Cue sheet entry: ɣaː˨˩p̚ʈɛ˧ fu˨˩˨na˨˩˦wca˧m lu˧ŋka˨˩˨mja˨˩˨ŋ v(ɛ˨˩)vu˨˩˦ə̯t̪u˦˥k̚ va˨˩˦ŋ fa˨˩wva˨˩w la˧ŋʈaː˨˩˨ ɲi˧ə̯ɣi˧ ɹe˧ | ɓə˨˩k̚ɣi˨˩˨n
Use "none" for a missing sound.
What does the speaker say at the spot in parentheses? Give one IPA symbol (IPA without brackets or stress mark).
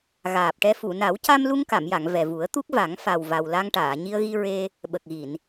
ɛ˨˩